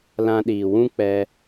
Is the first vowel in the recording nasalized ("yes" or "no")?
yes